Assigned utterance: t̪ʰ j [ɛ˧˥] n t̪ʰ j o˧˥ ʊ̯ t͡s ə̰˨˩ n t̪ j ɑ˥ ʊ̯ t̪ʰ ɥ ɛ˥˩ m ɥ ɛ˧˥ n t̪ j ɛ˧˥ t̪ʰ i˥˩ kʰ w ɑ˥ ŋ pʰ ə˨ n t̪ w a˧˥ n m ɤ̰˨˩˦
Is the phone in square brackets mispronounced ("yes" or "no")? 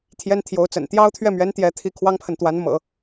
yes